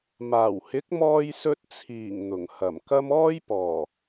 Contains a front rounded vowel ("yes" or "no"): no